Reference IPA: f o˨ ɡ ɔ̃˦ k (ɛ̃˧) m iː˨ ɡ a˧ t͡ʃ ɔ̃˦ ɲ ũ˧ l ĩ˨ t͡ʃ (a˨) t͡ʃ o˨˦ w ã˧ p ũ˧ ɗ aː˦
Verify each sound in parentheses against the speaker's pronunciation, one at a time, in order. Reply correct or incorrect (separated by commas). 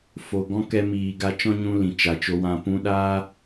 incorrect, correct